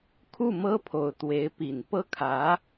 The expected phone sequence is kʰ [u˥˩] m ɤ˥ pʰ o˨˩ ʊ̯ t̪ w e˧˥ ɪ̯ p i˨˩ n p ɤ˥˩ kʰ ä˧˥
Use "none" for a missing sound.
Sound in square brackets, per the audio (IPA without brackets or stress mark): u˥˩